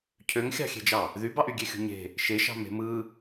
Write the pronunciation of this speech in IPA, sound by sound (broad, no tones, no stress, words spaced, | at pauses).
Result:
cʰøŋxʲɑ̤xʲe̤d͡ʒɑ | ðybɑʔ yɡʲexʲṳɲe̤ | ʃeʃɑ̤ me̤mɯ